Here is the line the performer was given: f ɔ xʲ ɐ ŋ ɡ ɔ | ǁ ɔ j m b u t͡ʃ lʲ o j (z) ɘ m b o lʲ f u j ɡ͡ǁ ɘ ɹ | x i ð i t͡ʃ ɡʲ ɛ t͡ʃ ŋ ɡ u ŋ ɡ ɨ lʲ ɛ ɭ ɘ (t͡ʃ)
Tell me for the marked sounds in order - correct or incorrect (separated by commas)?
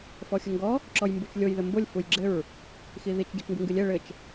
incorrect, correct